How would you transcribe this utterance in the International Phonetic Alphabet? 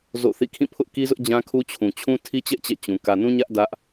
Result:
z o̰˦˨ θ ḭ˦˨ kʰ ĩ˦˨ pʰ ʊ˦ ʔ k i˦ z ʊ˦ ʔ d͡ʑ ã˦ kʰ u˦ t͡ɕʰ ũ˨ t͡ɕʰ ũ˦ tʰ i˦ t͡ɕ ɛ˦ ʔ t͡ɕ ɛ̰˦˨ t͡ɕ ũ˨ k ä˨ n ũ˦ ɲ ä˦ ʔ d ä˦ ʔ

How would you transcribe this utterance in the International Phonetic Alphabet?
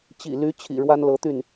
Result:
t͡ɕ ḭ˨˩ l y˧˥ t͡ɕʰ ḭ˨˩ ɻ w a˥ n l ɤ˧˥ t̪ y˥˩ n

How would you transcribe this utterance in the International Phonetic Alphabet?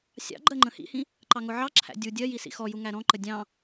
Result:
sʲ ɑ̰ ɡ͡ǃ ɜ ŋ͡ǃ ə̃ h ḭ h ĩ | ǃ ɑ ŋ ʊ ʕ ɑ ǁʰ æ̰ dʲ u dʲ ɜ j i s ḭ x ɔ j u ŋ æ ɾ ɔ̃ ǃ ə dʲ ɑ̃

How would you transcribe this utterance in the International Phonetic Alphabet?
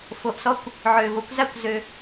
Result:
f o˨ ʔ s ɔ˦ kʷ | ʕ øː˨ v o˨˦ kʷ z a˦ kʷ z ø˦

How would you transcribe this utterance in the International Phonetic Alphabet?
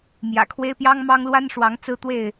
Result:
m j ä̰˨˩ kʰ w e˦ ɪ̯ p j ɑ˦ ŋ m ɑ˦ ŋ l w a˦ n ʂ w ɑ˨˦ ŋ t͡s ɹ̩˦ t̪ w e˥˨ ɪ̯

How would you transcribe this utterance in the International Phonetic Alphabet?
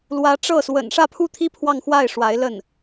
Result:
l w ä˧˥ ʈ͡ʂ ɤ˥˩ s w ə̰˨˩ n ʂ ä˥˧ pʰ u˥˧ t̪ʰ i˥˧ pʰ w ɑ˥˧ ŋ x w a˥˩ ɪ̯ ʂ w a˧˥ ɪ̯ l ə˥˩ n

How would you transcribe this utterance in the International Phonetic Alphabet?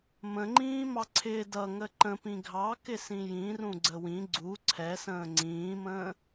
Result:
m ə̃ ŋ͡ǃ ĩː m ɑ ǀʰ ɪː d ʌ ŋ ə ǃ ə̃ p ĩ ɡʱ ɑ k ɪ s ĩ j ĩ r ũ ɡ͡ǀ ə w ĩ ɡ͡ǀ u ǀʰ ɛ s ə̃ː ŋ͡ǀ ĩː m ə̃ː

